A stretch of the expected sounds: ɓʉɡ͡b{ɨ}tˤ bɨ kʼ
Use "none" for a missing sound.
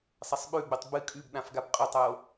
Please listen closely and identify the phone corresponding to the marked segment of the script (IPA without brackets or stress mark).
ɨ